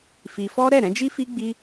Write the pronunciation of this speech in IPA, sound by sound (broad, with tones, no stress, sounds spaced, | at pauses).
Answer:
f i˧ f ɔ˦ ɾ ɛ˦˨ ɾ ɛ̃˨˦ d͡ʒ i˦ f i˦ ɡ͡b i˦